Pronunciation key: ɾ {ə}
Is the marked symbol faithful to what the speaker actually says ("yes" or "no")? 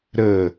yes